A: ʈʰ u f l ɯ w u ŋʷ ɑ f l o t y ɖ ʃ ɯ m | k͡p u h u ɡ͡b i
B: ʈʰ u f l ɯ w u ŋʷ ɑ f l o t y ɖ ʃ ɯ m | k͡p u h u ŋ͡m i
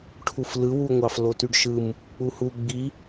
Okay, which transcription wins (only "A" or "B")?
A